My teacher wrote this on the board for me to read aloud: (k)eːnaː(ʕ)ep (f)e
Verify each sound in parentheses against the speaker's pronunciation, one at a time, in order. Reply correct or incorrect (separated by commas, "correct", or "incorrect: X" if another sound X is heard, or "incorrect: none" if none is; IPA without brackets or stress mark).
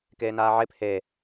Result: correct, correct, incorrect: h